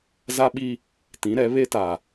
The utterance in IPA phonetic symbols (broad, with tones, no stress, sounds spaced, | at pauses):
z a˦ ɓ i˦ | t ĩ˨˦ ɾ ɛ˨˦ β e˦ t a˨